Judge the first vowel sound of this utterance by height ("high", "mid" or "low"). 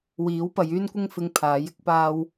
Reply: high